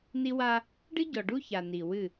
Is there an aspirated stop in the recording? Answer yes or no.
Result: no